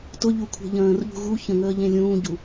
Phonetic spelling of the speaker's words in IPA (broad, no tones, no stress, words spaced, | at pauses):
tʊʎukʷʰe̤ ʎə̃ːrʎṳ ɣu çə̃ŋəːʎẽ lʲũːɟu